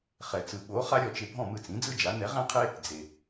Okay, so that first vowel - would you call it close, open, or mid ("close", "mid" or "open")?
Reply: mid